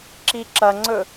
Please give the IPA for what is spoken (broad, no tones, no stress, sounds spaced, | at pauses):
ǁ i ǁ ɐ ŋ͡ǀ ɵ